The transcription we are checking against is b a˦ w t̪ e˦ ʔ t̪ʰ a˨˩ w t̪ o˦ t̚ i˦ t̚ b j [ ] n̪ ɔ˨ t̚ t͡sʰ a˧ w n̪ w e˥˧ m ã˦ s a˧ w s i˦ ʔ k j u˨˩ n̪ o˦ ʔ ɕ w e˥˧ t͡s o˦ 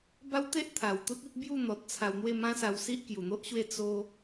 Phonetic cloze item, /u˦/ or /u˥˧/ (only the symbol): u˥˧